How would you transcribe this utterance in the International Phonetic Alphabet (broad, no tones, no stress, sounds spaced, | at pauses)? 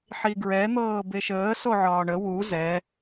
ħ i ɡ ɹ ɛ n̪ ɤː b e ʃ əː s o ʕ ɒː ɳ ə w u z ɛ